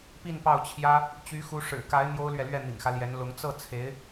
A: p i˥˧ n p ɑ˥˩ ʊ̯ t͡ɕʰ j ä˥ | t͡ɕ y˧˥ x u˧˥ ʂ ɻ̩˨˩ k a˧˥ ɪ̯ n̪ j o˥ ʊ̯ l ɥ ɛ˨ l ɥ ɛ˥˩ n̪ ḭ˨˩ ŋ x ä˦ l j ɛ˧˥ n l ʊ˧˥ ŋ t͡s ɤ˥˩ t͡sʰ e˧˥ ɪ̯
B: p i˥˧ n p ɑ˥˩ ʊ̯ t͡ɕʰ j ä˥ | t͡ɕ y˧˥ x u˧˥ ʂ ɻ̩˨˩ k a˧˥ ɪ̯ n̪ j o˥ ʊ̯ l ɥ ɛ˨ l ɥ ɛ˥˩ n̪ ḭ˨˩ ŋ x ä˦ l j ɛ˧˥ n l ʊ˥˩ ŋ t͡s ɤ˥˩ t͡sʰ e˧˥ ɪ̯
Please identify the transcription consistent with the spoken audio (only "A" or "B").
A